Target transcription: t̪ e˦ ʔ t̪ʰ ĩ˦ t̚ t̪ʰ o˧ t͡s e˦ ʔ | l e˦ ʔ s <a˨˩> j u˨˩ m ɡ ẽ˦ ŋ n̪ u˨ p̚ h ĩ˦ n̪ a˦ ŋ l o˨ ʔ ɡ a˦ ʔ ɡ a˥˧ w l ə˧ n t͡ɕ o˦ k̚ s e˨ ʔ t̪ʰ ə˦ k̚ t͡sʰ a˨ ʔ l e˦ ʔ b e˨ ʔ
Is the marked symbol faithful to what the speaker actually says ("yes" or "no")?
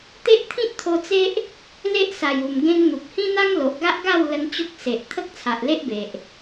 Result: yes